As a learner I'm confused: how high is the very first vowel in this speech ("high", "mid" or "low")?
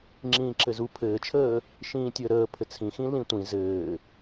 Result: high